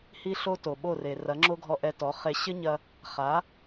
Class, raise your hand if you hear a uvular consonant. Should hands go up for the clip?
yes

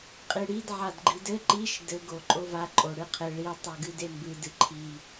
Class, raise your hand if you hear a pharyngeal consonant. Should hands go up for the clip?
yes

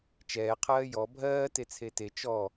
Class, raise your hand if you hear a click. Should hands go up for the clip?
no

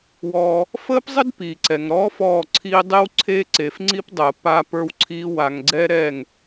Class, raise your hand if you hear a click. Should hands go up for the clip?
yes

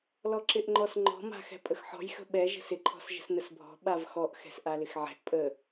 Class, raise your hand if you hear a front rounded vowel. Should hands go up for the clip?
no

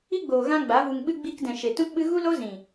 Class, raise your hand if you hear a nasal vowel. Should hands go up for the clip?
yes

